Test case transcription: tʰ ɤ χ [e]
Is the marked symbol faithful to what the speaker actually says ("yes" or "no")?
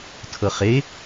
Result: yes